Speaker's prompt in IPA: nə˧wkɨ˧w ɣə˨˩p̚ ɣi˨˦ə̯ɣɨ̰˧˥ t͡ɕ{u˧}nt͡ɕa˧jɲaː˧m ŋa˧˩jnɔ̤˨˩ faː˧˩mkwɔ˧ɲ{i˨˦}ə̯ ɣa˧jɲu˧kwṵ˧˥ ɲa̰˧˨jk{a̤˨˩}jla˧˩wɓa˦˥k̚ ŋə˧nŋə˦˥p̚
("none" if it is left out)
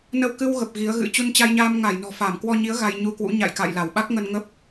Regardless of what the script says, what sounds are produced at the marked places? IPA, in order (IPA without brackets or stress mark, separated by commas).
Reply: u˧, i˨˦, a̰˧˨